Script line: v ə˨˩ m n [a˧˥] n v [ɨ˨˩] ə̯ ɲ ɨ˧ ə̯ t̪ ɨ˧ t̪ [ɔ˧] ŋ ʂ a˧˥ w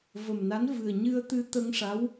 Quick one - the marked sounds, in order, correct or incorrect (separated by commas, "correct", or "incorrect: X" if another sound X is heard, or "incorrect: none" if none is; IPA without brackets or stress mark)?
correct, correct, incorrect: ə˧